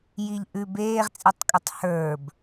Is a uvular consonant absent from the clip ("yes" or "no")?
no